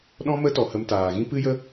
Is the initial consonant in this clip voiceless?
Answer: no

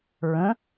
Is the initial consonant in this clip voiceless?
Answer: no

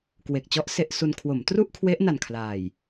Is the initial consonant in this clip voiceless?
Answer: yes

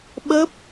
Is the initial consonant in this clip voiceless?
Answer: no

